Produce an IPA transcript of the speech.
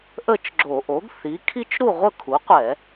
ʔ ə˥˨ t͡ʃ ɡ͡ǁ o˧˩˧ ʔ o˩˥ ɡ θ i˩˥ kʰ i˥ t͡ʃ ɾ u˥˨ ʁʷ ə˥˨ kʰ u˩˥ qʷ ɛ˧˩˧

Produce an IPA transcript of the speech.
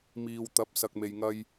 m iː˨ w t̪ ɐ˨˥ p̚ s ɐ˨ k̚ m e˨ j ŋ ɐ˧ j

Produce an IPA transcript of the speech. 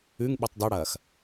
ʉ ŋ ɓ ʉ tˤ dˤ o ɽ ɐː x

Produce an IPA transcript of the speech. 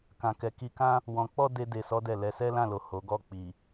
k ã˨ k ɛ˨ k i˧ k ã˧ | w ɔ̃˨ k͡p ɔ˧ d e˦ d e˧ s ɔ˦ d ɛ˦˨ l ɛ˧ s ɛ˦ l ã˦˨ l o˨ h o˨˦ ɡ ɔ˦˨ k͡p i˨

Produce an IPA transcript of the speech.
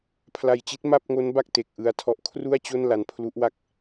pʰ l a˧ j t͡ɕ i˦˥ t̚ m a˥˩ p̚ ŋ o˦˥ n b a˥˩ k̚ t e˨˩ k̚ ʔ ɯ˧ a̯ tʰ ɔ˦˥ ʔ kʰ r u˥˩ a̯ t͡ɕ o˥˩ n l a˧ n pʰ l u˦˥ ʔ w a˥˩ k̚

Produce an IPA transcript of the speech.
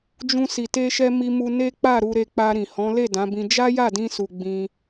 d͡ʒ ũ˧ s i˨ t e˧ ʃ ɛ˧ m i˧ m u˧ n e˦ k͡p a˦˨ ɾ u˧ ɾ e˧ k͡p a˧ ɾ ĩ˨ h ɔ̃˨˦ l e˦˨ d ã˨˦ b ĩ˧ d͡ʒ a˦ j a˦˨ d ĩ˧ s u˨ ɡ͡b ĩ˧

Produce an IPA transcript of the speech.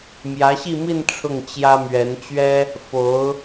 m j ä˧˥ ɕ i˥˧ m i˥˧ n ʈ͡ʂʰ ʊ˥˩ ŋ t͡ɕ j ä˥ m ɥ ɛ˧˥ n t͡ɕ ɥ ɛ˥ | f o˧˥ ʊ̯

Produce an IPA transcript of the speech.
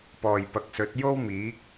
p ɔː˨ j p ɐ˨ k̚ s ɵ˨˥ t̚ j o˥ w m iː˨˥ k̚

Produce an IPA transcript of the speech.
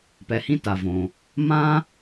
p ɛ˧ h ĩ˥ t a˩ v õː˩ | m ãː˥

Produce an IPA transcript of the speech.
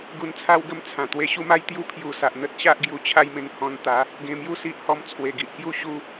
ɡ u˧ n t͡sʰ a˦ w ɡ ə˥˧ m t͡sʰ ã˨˩ t̪ w e˧ ɕ u˦ m a˦ j t̪ j u˦ pʰ j u˨˩ s a˨ ʔ n̪ ə˦ t̚ ɕ a˦ ʔ ɡ j u˨˩ t͡ɕʰ a˦ j m ẽ˧ ŋ h ɔ̃˧ n t̪ a˨˦ | ɡ ẽ˧ m j u˥˧ s i˦ ʔ h ɔ˧ m t͡sʰ w e˨˩ ɡ i˨ ʔ k j u˥˧ ɕ u˥˧

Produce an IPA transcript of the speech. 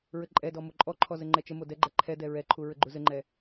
ɹ ɘ ǃʼ ɛ d ɔ m o ǃʼ ɔ ǃʰ ɔ z ɘ ŋ͡ǃ ɛ t͡ʃ ə m o d ɛ ɡ͡ǃ ɛ ǃʰ ɛ d ɛ ɹ ɛ ǃʰ u ɹ ɘ ɡ͡ǃ u z ɘ ŋ͡ǃ ɛ

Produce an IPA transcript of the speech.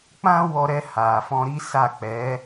k͡p ã˦ w ɔ˧ ɾ ɛ˧ h a˨ f ɔ̃˧ ɾ i˦ s a˦˨ k͡p ɛ˨˦

